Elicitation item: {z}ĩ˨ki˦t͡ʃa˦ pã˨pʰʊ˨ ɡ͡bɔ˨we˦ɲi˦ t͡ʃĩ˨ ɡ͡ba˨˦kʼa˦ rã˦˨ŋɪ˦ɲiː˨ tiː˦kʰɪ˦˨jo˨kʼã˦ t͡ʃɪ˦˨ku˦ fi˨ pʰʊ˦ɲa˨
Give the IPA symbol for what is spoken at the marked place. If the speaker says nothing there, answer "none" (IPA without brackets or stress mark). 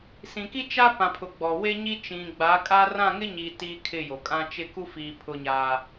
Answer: s